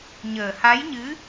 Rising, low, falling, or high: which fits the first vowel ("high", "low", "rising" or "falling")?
low